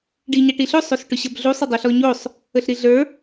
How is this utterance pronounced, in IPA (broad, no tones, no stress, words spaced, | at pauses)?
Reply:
ɖiɲaʈiɬɵ sˤosʈʊɕɐbɮusˤ ɵdˤuɬɔɲosˤ | əɬɾiɮə˞